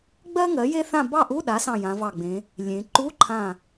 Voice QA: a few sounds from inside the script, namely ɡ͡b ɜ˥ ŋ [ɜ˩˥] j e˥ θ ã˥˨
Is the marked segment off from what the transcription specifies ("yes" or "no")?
no